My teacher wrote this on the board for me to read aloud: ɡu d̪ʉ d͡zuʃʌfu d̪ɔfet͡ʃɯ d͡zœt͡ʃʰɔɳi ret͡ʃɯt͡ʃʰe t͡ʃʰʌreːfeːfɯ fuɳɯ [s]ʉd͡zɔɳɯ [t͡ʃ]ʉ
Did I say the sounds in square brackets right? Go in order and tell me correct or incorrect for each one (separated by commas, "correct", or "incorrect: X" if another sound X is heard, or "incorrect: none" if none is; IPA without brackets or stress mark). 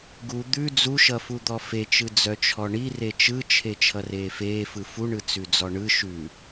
incorrect: t͡s, incorrect: ʃ